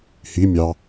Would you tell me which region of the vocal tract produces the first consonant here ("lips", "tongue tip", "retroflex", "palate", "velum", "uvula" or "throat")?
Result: throat